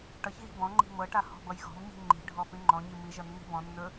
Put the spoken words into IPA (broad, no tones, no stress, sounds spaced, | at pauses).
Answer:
ʈ ʌ ç ɣ i̤ b ɔ̃ ŋ͡ǃ i̤ m ɤ ʈ a h ɔ̤ b ʌ j ɣ ɔ̤ m ɲ i̤ ŋ͡ǃ i̤ ɖʱ ɔ p ĩ ŋ͡ǃ ɔ̃ ɲ i m i ʒ ʌ nː i̤ b ɔ̃ nː ɵ